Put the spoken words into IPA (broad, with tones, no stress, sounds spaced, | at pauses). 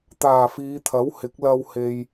t̪ aː˨˩ f iː˨˧ t̪ʰ ɐ˨˥ w h ɪ˨˥ k̚ l ɐ˧ w h e˨ j